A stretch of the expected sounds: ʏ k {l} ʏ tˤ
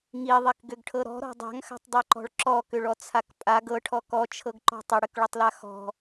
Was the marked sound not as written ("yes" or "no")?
yes